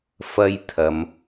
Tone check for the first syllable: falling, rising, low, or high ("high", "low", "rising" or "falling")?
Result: high